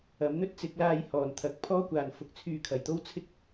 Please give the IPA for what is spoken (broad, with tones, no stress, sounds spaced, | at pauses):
ɐ˨˥ m n̪ ɵ˥ t̚ t͡s ɪ˨˥ k̚ l aː˧ j h ɔː˨˩ n t̪ʰ ɐ˨ k̚ pʰ ɔː˥ kʷ aː˨ n f ʊ˧ k̚ t͡sʰ yː˧ kʰ ɐ˨˧ j t̪ o˥ w t͡sʰ ɪ˥ k̚